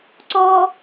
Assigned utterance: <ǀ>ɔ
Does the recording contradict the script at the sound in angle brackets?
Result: no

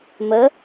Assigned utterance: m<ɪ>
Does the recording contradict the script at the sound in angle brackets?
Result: yes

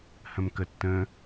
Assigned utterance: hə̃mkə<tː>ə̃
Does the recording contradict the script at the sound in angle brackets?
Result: no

